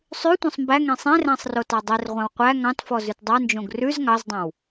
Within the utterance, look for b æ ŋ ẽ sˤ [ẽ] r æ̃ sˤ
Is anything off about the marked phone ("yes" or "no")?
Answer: no